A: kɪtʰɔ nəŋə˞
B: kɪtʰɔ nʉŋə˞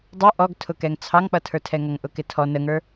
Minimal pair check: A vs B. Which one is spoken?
A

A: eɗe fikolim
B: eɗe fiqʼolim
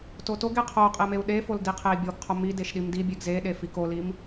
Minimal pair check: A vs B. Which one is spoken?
A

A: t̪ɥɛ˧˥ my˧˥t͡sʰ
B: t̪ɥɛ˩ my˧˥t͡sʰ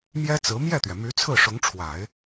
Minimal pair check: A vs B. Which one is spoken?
B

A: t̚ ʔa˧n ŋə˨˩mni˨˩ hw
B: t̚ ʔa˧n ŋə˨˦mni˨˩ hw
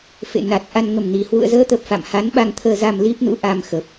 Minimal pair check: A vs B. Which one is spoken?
A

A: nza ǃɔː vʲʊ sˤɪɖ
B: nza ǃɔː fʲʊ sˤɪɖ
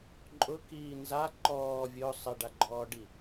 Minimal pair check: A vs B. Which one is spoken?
A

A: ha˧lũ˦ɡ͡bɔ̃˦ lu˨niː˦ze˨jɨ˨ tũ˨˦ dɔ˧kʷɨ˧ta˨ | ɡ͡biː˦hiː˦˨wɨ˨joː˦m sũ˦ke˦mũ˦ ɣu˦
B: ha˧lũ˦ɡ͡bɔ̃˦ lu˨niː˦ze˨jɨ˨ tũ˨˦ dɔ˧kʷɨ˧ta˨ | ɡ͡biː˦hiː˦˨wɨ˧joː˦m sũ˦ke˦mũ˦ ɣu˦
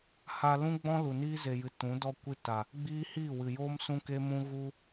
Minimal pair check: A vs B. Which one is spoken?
A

